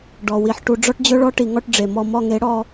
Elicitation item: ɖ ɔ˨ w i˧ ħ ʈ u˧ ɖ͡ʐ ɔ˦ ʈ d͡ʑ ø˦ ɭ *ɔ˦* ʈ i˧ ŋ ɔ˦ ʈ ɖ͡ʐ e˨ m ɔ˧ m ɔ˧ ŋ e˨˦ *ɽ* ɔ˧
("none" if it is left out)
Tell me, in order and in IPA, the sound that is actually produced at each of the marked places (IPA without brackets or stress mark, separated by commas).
ɔ˦, ɽ